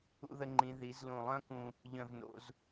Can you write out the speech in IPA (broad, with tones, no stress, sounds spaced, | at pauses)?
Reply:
ṵ˧ ð ə˧ ŋ͡ǃ ĩ˩˧ ð i˩˧ z l ũ˧˩ lˠ œ̃˥ k ũ˧ | ʎ œ̃˧˩ v n o̰˩˧ z